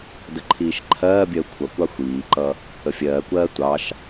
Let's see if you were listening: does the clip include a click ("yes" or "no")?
yes